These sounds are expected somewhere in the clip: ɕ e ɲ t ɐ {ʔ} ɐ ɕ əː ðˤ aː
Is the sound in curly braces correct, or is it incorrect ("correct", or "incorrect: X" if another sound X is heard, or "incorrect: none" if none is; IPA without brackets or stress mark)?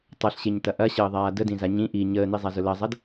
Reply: correct